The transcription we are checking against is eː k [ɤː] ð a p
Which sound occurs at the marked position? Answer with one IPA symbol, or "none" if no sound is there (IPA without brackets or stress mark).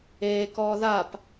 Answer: ɔː